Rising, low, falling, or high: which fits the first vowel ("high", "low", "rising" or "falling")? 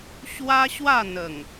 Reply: high